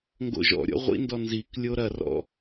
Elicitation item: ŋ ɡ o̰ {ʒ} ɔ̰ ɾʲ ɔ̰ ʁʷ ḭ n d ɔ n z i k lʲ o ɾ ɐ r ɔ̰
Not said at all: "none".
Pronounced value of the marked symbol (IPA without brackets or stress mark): ʒ